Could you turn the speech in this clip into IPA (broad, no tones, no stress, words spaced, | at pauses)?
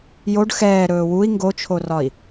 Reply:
joɖ xɛː ɾɵːwui̯ ŋɡot͡ʃʰorɒi̯